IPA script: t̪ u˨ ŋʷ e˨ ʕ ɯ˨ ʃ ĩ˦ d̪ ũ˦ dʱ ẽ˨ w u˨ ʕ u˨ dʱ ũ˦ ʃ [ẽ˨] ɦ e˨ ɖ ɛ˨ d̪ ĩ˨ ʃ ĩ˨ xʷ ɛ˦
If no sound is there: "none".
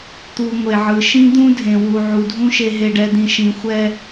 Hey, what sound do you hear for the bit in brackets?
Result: e˨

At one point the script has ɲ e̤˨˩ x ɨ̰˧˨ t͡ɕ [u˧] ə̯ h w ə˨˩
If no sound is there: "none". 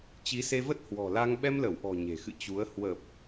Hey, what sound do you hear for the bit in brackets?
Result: u˨˦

